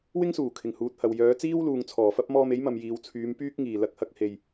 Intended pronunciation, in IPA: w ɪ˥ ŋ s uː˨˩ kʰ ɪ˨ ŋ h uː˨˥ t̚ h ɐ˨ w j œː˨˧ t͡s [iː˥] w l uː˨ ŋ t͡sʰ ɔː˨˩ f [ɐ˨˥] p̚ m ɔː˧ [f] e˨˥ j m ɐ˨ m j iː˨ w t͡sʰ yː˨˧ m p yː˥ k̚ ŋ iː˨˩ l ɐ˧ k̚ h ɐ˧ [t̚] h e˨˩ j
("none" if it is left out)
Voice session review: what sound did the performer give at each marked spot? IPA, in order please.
iː˥, ɐ˥, m, k̚

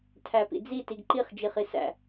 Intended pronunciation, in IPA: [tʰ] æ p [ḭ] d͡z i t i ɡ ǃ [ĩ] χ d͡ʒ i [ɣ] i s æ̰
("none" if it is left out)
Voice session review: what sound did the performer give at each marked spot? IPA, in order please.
tʰ, ḭ, i, χ

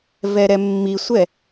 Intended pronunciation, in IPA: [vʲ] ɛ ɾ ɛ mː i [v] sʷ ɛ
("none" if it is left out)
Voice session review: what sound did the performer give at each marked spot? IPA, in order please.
v, none

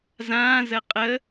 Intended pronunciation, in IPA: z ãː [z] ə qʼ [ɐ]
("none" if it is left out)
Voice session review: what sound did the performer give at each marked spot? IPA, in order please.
z, ə

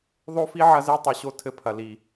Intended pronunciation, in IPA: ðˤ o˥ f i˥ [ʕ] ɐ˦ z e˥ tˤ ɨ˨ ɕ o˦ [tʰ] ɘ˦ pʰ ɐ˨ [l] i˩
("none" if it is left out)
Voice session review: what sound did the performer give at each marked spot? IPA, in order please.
ʕ, tʰ, l

